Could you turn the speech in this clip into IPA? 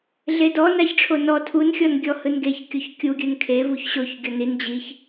ɮ e d ɔ n a ç ʈ͡ʂʰ o n ɔ tʰ u n xʲ ɔ n ɡʲ ɔ h ɯ n ɡ e ç kʲ o ç kʲ u ɡʲ ɯ n kʰ e v u ç ɕ o ç ɡʲ ɔ n i n d͡ʑ i ç

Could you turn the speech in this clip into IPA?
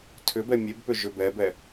tʰ ʏ b ɛ mʲ e b p ʏ ʒ ʏ b ɛ b ɛ

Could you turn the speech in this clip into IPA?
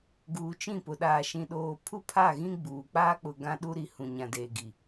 ɡ uː˨ t͡ʃ ĩ˦˨ p ʊ˨ ɗ aː˨ ʃ ĩ˨ ɗ oː˨ pʰ u˦ pʰ a˦˨ ɣ ĩ˦ ɡ͡b uː˨ k͡p aː˦ k͡p ʊ˨ ɡ ã˦ ɗ u˦ ɾ i˨ h ũ˨ ɲ ã˨ d eː˨ ɡ i˨

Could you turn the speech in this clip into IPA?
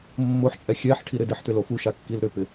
mː o ħ t͡ʃʼ ɛ xʲ ɛ ħ ʈʰ i ɾ ɪ d ɪ ħ t̪ ʏ l o f u ʃ a kː i l ɾ ʏ p ɪ

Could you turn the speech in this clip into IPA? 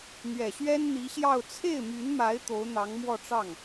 n̪ ɥ ɛ˨˩ ɕ ɥ ɛ˥ n n̪ i˧˥ ɕ j ɑ˥˧ ʊ̯ t͡sʰ e˥˩ ɪ̯ m y˧˥ n m a˧˥ ɪ̯ t̪ o˧˥ ʊ̯ n̪ ɑ˧˥ ŋ m w ɔ˥˧ ʈ͡ʂ ɑ˥˩ ŋ

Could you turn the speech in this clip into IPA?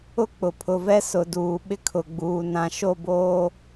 ʊ˦ k͡p ʊ˨ pʰ ʊ˨ v ɛ˦ s ʊ˨ d uː˨ ɓ ɪ˦ kʰ ʊ˨ ɡ͡b uː˨ n ã˨ ʃ o˦˨ b oː˦

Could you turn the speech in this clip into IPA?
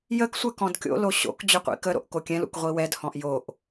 j ə k sʷ ɛ k ɔ̃ d kʲ o̰ l o ɕ o̰ k d͡ʑ ɵ qʷ ḭ k ə ɾ o̰ ʔ k o kʲ ɛ̃ l ṵ k ʁʷ i w ɛ d h ɔ̃ ʔ j o ʔ

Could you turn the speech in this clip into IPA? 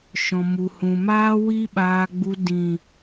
ʃ ɔ̃˨ m u˨ h ũ˨ m aː˦ w i˦ ɓ aː˧ ɡ͡b u˧ d ĩ˨

